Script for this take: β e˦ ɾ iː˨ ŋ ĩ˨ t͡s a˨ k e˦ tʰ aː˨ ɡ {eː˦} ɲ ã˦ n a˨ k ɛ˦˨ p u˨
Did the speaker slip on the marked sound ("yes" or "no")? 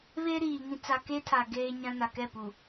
no